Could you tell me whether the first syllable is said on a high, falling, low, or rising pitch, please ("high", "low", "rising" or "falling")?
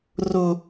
high